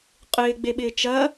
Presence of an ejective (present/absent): present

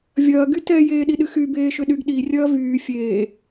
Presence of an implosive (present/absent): present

